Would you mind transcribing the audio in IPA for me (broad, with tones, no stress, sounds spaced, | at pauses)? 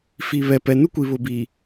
f i˨ β ɛ˨ p ɛ˨ n u˦ kʷ i˨ β ʊ˨ b i˨